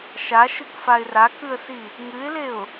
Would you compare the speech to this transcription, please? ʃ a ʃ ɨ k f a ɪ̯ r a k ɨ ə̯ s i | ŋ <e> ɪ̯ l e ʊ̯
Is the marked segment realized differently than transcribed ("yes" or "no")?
yes